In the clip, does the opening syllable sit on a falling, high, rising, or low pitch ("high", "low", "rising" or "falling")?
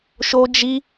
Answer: high